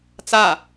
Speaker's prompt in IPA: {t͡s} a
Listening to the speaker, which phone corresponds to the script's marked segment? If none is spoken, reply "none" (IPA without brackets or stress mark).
t͡s